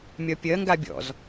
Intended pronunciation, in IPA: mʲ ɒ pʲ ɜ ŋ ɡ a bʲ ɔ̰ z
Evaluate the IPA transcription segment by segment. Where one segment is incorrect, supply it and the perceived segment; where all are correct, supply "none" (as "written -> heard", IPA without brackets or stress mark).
none